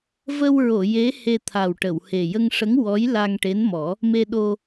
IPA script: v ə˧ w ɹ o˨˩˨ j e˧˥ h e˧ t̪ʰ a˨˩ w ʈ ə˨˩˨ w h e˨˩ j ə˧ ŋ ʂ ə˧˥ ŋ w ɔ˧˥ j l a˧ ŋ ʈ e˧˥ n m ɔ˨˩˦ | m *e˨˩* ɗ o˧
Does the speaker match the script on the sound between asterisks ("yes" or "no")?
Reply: no